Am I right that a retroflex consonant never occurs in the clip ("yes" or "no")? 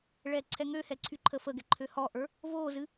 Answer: no